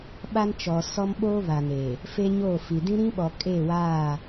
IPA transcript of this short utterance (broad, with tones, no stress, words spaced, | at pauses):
ɓa˦nt͡ʃɔ˨ sɔ˦m ɓo˦βa˨neː˨ | fe˦ɲoː˦˨fi˨ dĩ˦ɾĩ˦ɓɔ˨ kʼe˦˨waː˦˨